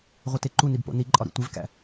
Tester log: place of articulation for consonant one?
uvular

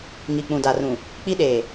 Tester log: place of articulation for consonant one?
velar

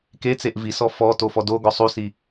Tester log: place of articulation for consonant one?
velar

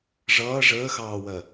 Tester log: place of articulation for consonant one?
retroflex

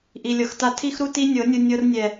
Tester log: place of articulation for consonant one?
glottal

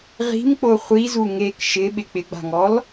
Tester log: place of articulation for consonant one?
uvular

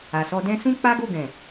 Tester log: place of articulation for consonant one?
alveolar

